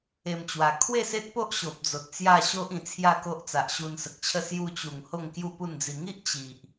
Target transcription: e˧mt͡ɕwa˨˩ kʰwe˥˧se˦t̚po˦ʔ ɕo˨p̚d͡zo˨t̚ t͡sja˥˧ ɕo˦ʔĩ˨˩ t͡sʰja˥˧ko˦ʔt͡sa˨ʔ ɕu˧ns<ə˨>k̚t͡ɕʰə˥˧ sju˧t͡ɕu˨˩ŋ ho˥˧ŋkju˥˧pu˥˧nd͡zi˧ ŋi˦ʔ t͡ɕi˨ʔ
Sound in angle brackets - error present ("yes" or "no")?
no